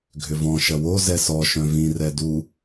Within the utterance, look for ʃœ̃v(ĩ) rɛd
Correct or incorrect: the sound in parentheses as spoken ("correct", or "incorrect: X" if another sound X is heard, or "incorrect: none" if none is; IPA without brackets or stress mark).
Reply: correct